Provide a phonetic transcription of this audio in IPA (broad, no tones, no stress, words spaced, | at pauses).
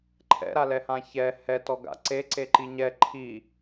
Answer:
ǃʰɛ̰ɾalɛhã çɛ hɛtɔɡa̰ ǀeǀeǃi ɲɛ ǃʰi